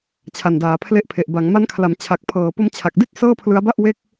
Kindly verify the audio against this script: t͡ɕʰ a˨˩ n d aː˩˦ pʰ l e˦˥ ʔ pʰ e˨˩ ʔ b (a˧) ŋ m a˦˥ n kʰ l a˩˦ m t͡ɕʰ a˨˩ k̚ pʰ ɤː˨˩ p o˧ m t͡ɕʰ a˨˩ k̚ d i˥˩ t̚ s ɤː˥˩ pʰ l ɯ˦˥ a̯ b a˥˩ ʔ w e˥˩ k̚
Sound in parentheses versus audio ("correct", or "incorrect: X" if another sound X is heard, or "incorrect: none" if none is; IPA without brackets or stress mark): incorrect: a˩˦